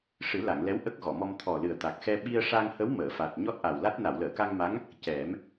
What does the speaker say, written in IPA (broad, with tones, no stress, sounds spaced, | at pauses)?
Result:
ʂ ɨ˨˩˦ l a˨˩˨ ŋ l ɛ˧˥ w ʔ ə˦˥ k̚ ɣ ɔ˨˩˨ m ɔ˧ m t̪ʰ ɔ˨˩ l ɨ˨˩ ə̯ t̪ a˨˩ k̚ x ɛ˧ ɓ i˧ ə̯ ʂ a˧ ŋ h ə˧˥ w m əː˨˩˨ f a˨˩ t̚ ɲ ɔ˦˥ t̚ ʔ a˨˩ w l a˦˥ t̚ n a˨˩˨ w l əː˨˩˨ k a˧ ŋ m a˧˥ ŋ | c ɛ˨˩˦ m